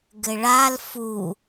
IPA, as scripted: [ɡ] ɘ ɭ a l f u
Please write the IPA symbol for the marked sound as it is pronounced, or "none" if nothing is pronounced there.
ɡ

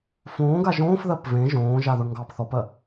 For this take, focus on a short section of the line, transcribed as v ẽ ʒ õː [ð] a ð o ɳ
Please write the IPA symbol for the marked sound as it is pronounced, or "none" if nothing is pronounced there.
ʒ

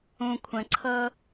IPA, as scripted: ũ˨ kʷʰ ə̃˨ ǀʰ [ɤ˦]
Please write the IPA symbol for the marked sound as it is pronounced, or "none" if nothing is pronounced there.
ɤ˦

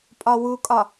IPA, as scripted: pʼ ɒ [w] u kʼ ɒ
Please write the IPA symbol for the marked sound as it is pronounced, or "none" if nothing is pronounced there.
w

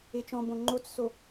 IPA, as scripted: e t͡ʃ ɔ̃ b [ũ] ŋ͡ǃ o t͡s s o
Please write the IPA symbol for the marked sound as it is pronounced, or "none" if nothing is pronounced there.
õ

